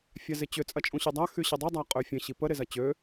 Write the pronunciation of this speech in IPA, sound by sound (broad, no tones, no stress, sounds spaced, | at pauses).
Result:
fʲ a z ɪ t͡ɕ ʏ t͡sʼ ɐ t͡ʃʼ ũ ɕ y dˤ a x y ɕ ə dˤ u dˤ a qʼ ø fʲ ə̃ ɕ i p ə ɾ ɪ z ɐ t͡ɕ ø